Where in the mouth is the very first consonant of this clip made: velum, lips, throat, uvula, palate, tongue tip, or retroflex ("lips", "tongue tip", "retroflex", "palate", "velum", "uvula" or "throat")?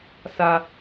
tongue tip